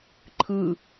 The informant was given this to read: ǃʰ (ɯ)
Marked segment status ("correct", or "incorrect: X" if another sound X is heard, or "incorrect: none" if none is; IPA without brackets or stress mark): correct